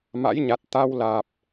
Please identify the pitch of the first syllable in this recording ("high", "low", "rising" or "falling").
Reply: rising